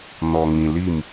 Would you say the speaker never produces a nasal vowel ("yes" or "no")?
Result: no